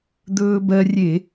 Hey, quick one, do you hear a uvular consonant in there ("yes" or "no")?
no